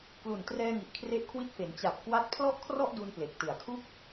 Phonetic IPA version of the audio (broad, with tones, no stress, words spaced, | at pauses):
klu˨˩n trɛː˧ŋi˨˩ʔ kʰre˦˥ʔkʰwi˦˥t̚fe˩˦n t͡ɕa˨˩p̚ kwa˦˥t̚ pʰlɔ˥˩ʔkʰrɔ˥˩ʔdu˧n ple˨˩k̚tɯ˨˩a̯kʰu˥˩k̚